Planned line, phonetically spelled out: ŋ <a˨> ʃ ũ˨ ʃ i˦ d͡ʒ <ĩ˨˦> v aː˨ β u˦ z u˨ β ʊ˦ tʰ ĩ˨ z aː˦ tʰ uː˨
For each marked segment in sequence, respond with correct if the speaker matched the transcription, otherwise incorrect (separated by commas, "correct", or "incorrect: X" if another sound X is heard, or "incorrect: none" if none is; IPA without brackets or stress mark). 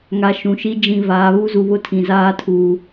correct, incorrect: ĩ˨